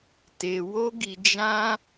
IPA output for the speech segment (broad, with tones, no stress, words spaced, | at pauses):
te˧wo˦ɡi˧d͡ʒã˦